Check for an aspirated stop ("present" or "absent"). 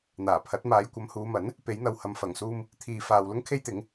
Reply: present